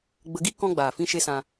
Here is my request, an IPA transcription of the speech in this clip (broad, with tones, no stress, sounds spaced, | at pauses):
ɡ͡b ə˧ ɡ i˦ k ɔ̃˦ ɡ͡b aː˨ f ĩ˦ ʃ e˦ s ã˧